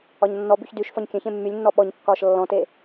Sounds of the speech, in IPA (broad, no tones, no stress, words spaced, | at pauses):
ɒɲnːɔbyç dyʃ fɒɲkʲœ̃ç ẽmːylʲnːɔ ɓɔɲkːɒːʃ lːɔ̃te